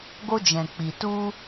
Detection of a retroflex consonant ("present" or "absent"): absent